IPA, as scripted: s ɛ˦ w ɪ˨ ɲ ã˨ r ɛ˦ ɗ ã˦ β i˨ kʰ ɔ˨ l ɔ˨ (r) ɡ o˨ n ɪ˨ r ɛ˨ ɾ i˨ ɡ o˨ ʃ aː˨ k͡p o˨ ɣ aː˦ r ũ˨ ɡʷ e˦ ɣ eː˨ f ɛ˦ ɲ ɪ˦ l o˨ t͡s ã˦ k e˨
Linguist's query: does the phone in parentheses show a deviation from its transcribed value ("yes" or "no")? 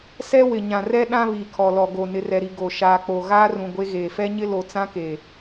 yes